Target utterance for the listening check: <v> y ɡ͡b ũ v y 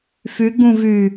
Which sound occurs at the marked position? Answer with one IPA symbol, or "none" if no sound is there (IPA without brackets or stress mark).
f